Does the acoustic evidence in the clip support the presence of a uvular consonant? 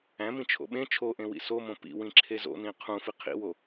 yes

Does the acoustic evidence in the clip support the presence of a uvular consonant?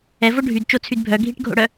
no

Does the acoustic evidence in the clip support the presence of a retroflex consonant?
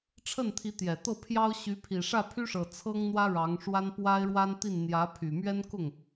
yes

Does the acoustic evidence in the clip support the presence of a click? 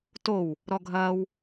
no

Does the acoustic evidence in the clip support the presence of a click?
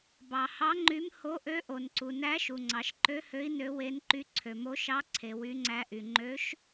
yes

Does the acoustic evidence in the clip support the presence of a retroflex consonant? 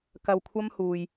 no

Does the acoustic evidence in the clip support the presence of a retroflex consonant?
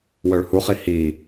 yes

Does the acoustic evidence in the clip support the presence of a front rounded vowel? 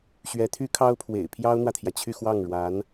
yes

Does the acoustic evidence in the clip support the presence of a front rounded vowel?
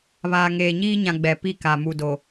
no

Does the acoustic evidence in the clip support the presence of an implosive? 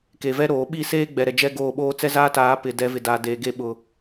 yes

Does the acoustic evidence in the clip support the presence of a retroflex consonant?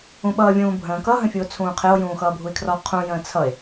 no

